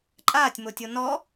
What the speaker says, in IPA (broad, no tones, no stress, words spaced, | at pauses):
ǃʼaːtʲmotʲo nɔ